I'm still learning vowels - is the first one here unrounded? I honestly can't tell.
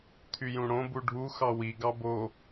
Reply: no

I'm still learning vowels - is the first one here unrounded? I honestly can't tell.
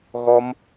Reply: no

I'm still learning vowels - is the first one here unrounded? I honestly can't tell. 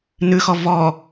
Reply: no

